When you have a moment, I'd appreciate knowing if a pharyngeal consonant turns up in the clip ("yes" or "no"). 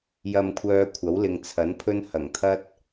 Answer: no